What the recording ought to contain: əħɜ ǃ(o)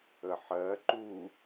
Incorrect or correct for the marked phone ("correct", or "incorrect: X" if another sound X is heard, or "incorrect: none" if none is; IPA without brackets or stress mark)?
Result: incorrect: u